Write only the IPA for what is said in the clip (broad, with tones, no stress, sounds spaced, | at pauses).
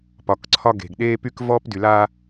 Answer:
p ɒ˨ k ǀʰ ɒ˦ ɡ e̤˨ ɡ ɗ eː˦ p y˦ k v ɔː˦ p d y˨ l aː˦